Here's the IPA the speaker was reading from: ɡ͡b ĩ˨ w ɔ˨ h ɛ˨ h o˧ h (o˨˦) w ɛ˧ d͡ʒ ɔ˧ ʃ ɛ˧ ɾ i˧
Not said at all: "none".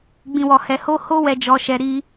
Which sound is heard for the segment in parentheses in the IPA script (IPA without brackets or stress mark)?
o˦